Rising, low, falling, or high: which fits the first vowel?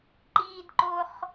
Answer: high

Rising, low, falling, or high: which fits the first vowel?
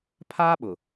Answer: high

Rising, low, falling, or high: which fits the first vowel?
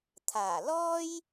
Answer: low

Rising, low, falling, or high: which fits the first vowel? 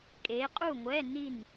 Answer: rising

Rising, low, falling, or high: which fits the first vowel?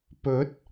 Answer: rising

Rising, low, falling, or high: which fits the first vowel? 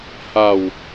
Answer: falling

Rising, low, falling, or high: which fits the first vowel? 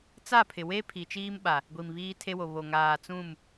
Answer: falling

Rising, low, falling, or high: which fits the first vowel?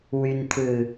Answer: low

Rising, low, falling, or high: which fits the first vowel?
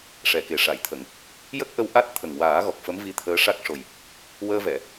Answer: low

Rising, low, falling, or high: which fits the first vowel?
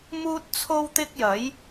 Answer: high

